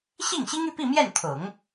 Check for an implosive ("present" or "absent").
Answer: absent